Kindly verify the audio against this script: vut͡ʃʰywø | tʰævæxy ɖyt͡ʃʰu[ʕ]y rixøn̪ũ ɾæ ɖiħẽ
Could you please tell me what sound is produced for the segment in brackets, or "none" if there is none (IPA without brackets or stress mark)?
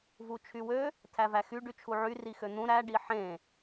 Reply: ʕ